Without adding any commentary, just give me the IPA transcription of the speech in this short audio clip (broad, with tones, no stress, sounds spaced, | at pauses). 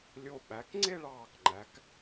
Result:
lʲ o˧ ɓ æ˩˧ k ŋ͡ǀ e˥˧ ɭ ɑː˧˩ k ŋ͡ǃ æ˩˧ k